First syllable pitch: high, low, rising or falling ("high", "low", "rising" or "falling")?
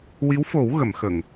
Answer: rising